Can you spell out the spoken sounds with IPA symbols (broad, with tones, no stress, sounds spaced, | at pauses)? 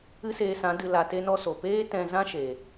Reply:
ɨ˦ s eː˧ s ã˨˦ d ɨ˧ l a˧ t e˦ n ɔ˦ s o˨ p eː˦ t ɛ̃˧ z ã˦ ʃ e˨